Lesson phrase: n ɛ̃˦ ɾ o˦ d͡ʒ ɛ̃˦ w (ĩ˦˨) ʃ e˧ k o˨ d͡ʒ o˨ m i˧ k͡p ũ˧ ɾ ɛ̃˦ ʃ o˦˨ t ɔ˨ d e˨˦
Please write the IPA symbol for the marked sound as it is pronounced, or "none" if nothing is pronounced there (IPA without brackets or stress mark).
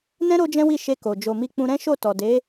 i˦˨